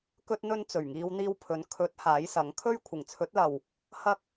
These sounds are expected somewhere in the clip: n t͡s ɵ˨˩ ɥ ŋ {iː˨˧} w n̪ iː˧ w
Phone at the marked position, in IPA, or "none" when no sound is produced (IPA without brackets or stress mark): iː˨˧